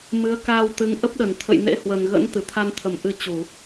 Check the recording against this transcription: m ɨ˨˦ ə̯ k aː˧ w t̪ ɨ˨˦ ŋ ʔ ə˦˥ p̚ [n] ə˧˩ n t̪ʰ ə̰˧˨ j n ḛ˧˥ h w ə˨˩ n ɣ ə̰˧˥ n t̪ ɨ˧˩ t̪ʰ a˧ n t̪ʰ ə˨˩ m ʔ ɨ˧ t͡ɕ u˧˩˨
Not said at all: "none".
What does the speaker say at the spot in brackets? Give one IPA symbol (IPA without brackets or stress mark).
ɗ